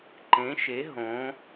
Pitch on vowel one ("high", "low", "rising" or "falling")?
rising